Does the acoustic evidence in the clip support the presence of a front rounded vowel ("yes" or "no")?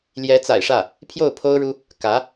no